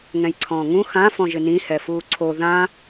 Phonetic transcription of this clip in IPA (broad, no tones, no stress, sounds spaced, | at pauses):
ŋ ɛ̃ j ǀʰ ɔ̃ː ŋ ũ x ã f ɔ̃ ʒ ɪ n ĩ h ɛ f uː ǀʰ o ð ã